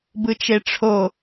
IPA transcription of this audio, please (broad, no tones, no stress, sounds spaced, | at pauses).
b ɯ t͡ʃ e ʈ͡ʂʰ o